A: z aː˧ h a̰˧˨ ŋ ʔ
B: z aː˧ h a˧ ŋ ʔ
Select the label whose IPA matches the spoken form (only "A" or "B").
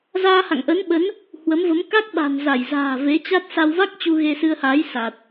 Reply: A